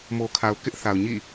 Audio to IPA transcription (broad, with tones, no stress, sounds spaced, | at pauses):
m o˨ kʰ a˨ ʊ̯ k ɪ˦ ʔ θ a˨ ʊ̯ ɲ ḭ˦˨